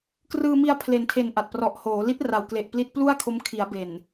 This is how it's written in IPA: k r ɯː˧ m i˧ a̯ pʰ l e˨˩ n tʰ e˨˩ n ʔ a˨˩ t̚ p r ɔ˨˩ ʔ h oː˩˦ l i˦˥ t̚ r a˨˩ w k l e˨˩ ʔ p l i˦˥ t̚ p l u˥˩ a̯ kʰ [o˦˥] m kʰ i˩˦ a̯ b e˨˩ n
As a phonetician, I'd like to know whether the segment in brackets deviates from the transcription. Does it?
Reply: no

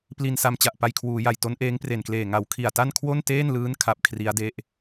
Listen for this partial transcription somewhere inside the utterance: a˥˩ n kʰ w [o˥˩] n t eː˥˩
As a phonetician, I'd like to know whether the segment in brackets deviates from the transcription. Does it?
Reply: no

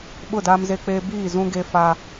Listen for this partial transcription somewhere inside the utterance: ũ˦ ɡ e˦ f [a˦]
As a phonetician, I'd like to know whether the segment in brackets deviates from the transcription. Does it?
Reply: no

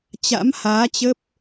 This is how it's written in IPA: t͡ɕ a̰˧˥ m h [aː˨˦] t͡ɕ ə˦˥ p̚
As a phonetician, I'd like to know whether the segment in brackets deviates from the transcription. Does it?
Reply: no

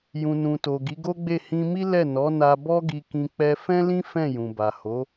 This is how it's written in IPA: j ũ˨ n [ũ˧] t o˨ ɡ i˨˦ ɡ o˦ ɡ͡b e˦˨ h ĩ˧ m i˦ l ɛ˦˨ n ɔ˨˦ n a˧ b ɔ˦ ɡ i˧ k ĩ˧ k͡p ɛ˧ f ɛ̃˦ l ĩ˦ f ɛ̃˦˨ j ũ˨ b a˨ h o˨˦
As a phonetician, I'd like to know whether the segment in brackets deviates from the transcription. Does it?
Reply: yes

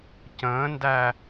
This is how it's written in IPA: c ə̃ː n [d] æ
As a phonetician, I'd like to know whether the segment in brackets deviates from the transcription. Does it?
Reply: no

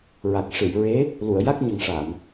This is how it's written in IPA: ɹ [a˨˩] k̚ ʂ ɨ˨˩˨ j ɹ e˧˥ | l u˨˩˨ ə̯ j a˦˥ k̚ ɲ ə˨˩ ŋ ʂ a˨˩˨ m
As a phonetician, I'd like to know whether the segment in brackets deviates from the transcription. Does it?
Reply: no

